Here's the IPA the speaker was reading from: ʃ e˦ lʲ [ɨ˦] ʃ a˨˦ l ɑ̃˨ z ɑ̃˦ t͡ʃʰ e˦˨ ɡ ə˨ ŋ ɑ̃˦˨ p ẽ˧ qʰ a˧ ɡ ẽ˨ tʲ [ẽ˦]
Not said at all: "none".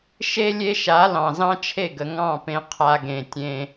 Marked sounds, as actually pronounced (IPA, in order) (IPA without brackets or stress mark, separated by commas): e˦, ẽ˧